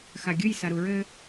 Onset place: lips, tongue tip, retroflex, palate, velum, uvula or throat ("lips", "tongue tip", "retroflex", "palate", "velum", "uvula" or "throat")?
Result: velum